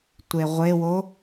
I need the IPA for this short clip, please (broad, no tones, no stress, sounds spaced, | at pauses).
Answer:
tʷ e ʁʷ e w o